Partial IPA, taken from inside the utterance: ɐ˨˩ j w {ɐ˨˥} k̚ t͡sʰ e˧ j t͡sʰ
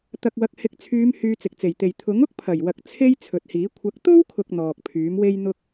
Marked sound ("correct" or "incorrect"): incorrect